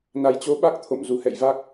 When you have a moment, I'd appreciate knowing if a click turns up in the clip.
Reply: no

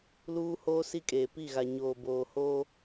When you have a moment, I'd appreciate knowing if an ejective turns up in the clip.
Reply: yes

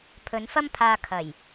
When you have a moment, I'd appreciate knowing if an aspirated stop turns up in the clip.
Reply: yes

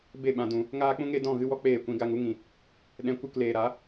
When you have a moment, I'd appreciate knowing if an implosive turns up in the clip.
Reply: yes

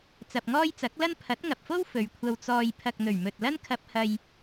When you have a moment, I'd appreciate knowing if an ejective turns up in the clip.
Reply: no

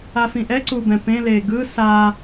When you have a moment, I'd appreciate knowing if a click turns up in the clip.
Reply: yes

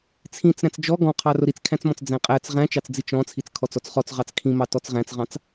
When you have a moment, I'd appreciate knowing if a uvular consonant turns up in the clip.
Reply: yes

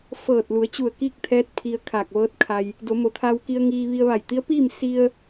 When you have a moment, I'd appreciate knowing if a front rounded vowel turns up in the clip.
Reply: no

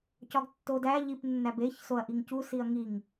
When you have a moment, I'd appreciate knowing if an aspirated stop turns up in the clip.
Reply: no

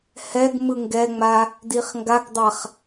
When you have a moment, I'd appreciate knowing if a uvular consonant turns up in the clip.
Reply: yes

